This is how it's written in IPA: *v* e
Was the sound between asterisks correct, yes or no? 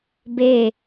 no